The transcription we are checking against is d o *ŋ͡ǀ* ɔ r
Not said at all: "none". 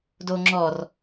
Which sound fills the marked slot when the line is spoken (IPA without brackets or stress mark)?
ŋ͡ǁ